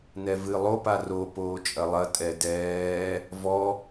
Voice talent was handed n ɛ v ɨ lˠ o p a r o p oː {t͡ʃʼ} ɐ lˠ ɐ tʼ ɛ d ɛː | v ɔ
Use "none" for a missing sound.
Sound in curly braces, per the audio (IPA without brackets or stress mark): t͡ʃʼ